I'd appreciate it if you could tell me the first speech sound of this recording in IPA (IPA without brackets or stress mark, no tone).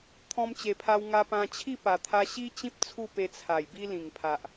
t̪ʰ